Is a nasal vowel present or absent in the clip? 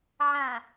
present